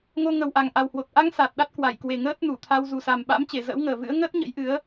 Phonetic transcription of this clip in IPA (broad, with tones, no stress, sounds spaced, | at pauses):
ŋ o˧ ŋ ə˨˩ w ʔ a˨˩ ŋ ʔ a˨˩ w h w o˨˩ t̚ ʔ a˧ ŋ s a˨˩ t̚ ɗ a˦˥ t̚ k w a˧˩ j k w e˨˩ ŋ əː˦˥ t̚ n u˧˩ t̪ʰ a˧ w z u˨˩ s a˨˩ m ɓ a̰˧˥ m t͡ɕ e˧˩ z ə̰ː˧˥ w ŋ əː˨˩ v ɨ̰˧˥ ə̯ ŋ əː˦˥ t̚ ɲ ə̰˧˥ j ʔ ɨ˨˦ ə̯